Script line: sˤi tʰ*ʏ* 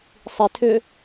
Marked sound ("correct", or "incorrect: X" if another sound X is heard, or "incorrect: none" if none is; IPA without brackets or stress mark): correct